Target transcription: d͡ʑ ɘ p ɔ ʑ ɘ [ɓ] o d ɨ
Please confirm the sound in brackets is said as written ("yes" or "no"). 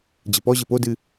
no